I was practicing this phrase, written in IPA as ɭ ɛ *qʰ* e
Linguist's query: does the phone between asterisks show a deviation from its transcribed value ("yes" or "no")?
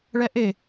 yes